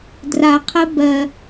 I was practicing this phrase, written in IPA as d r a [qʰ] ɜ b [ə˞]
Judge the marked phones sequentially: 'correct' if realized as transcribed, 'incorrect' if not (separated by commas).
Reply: correct, incorrect